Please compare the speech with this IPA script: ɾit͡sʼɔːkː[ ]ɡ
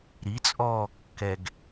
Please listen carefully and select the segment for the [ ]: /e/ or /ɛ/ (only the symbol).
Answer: ɛ